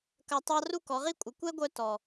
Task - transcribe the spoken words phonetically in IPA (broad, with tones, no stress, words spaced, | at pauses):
kɐ˧tˤɑ˦ ru˦kɔ˨˦ʁi˦kʷʼə˨˦ kʷɛ˦ɡʷœ˧ tɔ˨